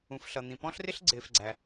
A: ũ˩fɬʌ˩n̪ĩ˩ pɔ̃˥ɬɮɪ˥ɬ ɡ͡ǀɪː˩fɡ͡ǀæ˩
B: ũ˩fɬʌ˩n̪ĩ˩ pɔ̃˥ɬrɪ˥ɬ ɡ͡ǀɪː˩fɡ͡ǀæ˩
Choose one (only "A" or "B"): B